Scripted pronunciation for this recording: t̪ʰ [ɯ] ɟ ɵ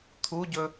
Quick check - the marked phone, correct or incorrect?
incorrect